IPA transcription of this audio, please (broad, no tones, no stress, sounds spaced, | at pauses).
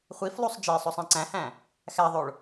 χʷ i f lˠ u sˤ d͡ʒ e sˤ o sˤ æ̃ ǀ æ̃ h æ̃ | x æ ðˤ o ɭ